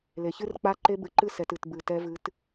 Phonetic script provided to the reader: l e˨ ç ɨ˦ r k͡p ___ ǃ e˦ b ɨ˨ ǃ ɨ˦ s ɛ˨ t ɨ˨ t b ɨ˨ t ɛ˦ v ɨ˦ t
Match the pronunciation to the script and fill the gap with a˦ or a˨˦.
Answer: a˦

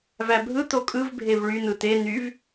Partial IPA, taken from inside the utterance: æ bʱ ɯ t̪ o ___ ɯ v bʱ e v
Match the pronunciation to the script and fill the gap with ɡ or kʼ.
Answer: kʼ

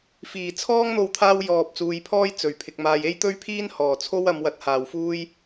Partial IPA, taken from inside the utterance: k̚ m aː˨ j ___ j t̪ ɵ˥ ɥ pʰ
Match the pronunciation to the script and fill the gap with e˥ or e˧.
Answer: e˥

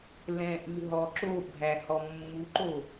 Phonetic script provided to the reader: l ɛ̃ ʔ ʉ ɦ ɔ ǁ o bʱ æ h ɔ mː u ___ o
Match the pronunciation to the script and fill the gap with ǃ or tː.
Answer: ǃ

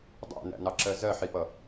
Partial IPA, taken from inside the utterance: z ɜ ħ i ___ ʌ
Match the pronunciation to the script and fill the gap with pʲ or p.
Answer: p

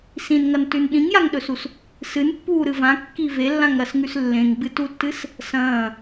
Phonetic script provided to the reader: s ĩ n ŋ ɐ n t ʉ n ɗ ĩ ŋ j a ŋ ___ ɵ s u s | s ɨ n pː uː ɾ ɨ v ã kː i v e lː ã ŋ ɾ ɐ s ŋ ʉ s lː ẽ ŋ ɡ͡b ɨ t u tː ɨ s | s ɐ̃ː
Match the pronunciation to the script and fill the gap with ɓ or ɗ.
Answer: ɗ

